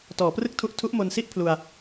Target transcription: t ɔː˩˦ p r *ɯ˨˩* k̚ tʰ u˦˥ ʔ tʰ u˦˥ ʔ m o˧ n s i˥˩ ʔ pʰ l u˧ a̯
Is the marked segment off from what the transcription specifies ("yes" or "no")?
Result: yes